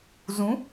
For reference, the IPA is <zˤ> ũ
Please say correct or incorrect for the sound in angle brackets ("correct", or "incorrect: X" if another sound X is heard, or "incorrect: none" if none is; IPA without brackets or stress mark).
incorrect: z